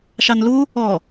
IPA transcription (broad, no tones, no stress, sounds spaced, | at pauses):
ʃ ɑ n l u | ɔ